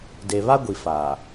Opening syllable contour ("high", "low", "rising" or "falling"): low